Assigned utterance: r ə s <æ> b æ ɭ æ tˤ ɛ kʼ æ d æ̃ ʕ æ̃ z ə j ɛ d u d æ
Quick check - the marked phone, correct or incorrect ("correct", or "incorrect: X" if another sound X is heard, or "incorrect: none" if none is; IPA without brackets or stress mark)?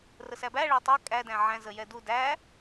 correct